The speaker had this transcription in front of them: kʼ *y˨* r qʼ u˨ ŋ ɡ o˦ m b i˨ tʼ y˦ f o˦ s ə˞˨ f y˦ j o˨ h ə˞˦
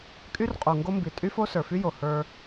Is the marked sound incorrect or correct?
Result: incorrect